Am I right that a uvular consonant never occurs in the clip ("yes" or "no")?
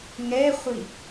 no